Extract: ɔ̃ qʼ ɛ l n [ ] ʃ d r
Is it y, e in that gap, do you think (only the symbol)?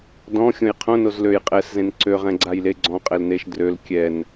e